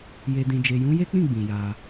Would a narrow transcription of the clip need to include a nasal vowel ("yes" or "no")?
yes